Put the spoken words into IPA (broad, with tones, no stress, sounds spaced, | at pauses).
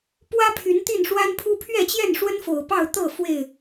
p w ä˦ pʰ y˨˦ n t̪ i˥˨ n ʂ w a˦ n pʰ u˦ pʰ ɥ ɛ˥˨ t͡ɕ j ɛ˥˨ n ʂ w ə˦ n f o˨˩ ʊ̯ p ɑ˥˨ ʊ̯ t̪ ɤ˥˨ f w e˥˨ ɪ̯